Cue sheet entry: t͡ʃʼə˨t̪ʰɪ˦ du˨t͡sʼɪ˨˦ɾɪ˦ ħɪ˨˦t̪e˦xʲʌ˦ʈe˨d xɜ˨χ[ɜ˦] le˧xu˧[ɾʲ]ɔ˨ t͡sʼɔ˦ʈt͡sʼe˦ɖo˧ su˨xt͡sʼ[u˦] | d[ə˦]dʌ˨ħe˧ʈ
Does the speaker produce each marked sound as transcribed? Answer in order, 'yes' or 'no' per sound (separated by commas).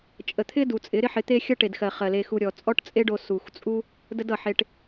no, yes, yes, yes